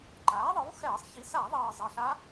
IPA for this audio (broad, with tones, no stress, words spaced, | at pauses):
ǃaː˩˥ðˤɯ˩˥w xɛː˧˩˧sˤ çi˩˥ sa˧˩˧ðˤʌː˨˩ zˤɛ˨˩ɬa˧˥